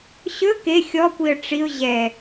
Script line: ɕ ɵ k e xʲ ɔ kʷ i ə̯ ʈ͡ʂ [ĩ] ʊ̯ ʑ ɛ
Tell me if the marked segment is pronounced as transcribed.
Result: no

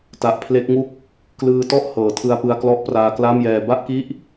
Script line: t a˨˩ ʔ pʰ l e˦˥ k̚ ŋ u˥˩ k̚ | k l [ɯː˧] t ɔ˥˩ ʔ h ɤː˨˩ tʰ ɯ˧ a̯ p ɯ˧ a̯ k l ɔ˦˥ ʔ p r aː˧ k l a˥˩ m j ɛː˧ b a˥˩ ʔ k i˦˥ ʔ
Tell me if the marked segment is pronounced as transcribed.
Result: yes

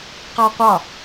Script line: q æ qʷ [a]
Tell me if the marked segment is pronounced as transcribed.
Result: no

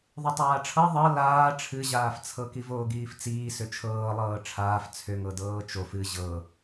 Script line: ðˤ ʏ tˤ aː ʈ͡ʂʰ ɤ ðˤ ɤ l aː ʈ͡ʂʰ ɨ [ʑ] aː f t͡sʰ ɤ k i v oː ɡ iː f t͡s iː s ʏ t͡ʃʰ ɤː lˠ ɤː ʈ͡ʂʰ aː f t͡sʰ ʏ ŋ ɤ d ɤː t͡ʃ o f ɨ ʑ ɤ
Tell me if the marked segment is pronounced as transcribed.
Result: yes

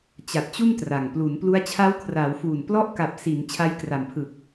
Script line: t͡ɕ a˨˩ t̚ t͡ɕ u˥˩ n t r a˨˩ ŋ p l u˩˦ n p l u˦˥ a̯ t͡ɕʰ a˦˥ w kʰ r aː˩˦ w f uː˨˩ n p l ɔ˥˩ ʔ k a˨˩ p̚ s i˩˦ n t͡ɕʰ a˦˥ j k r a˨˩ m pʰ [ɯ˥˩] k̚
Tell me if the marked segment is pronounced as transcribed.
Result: no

